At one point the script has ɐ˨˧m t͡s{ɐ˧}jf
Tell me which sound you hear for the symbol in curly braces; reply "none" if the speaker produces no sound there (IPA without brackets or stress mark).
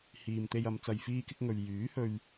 ɐ˧